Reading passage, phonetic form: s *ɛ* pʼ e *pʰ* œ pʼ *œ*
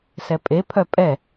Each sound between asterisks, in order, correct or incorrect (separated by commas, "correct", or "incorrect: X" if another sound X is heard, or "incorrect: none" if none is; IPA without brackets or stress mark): correct, correct, incorrect: ɛ